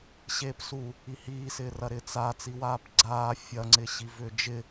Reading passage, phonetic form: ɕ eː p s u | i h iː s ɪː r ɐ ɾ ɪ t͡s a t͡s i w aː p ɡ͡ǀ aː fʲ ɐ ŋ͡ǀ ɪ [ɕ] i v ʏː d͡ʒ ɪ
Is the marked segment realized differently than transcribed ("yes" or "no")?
no